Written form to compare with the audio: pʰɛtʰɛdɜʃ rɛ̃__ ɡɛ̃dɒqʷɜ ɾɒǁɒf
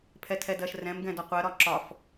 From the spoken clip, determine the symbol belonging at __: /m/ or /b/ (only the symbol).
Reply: m